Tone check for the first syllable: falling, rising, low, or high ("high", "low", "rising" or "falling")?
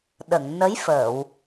low